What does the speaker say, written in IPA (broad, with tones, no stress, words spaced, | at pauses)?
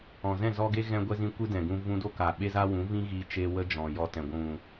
ɔ̃˨zɛ̃˦˨ zɔ˦ ɡe˦ ɣɛ̃˦ɡʷɛ˦zĩ˦ kʷɨ˦dɛ̃˨ɡũ˧ vũ˧do˦ka˨ ɓe˦za˦wũ˨˦ vĩ˦ɣi˧ t͡ʃe˧ wə˦d͡ʒɔ̃˨jɔ˧tɛ̃˨ ɡʷũ˨